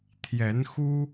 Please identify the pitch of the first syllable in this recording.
rising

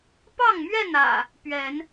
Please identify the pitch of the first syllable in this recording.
falling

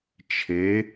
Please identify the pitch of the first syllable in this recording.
rising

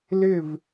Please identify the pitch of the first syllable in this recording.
falling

